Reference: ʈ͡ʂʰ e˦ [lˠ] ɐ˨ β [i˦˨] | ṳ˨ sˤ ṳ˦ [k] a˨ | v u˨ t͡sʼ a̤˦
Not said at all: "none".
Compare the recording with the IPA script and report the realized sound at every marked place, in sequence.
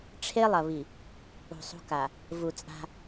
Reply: lˠ, i˨, k

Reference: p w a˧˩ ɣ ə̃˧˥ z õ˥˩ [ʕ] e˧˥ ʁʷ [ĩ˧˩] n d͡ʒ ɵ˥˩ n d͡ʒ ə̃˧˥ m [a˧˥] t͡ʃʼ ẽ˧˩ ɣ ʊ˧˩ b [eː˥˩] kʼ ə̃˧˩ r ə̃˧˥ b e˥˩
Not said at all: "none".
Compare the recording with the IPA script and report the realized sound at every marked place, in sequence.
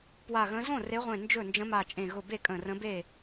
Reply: r, ẽ˧˩, a˧˩, e˥˩

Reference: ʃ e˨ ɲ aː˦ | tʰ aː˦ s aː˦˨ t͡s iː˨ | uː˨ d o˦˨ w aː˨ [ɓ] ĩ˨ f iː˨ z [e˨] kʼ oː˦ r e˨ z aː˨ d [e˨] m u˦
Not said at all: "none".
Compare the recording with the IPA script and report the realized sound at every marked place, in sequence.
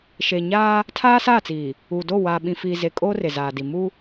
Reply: ɓ, e˨, i˨

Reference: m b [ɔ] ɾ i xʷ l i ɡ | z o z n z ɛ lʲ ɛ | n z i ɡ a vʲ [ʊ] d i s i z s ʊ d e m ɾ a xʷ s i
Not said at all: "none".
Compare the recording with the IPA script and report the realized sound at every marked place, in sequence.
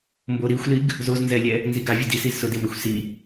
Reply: o, ʊ

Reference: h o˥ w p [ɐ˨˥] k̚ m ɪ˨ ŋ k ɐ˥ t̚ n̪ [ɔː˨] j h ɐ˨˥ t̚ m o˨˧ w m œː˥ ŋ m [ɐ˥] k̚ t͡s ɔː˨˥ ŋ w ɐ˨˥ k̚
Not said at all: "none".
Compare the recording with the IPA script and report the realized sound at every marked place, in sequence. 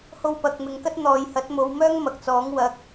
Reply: ɐ˨˥, ɔː˨, ɐ˨

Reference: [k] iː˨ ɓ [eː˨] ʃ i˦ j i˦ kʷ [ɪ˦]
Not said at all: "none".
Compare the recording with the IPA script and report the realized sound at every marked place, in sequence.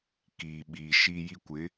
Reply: k, iː˨, ɪ˨˦

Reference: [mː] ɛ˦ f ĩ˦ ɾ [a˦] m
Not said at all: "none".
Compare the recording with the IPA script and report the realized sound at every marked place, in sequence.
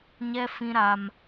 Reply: ɲ, a˦

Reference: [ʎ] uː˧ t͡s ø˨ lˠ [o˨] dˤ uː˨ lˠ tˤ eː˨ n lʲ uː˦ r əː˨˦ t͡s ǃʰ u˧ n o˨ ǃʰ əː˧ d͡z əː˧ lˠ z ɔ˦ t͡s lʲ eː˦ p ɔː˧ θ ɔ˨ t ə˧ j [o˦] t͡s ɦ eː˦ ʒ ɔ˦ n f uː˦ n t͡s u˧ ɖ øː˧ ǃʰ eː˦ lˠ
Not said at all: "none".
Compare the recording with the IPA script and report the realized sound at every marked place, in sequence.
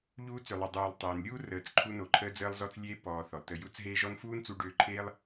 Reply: ʎ, o˨, u˦

